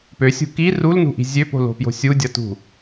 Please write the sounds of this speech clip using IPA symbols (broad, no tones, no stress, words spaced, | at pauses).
pøsʲṳ ki rulnṳʔi̤ zʲøpo̤lo̤pjo̤ sʲudʲʌtṳ